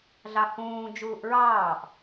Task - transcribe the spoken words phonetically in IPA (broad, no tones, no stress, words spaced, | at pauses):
ɮɑhũː d͡ʒuːʔɹɑːʔ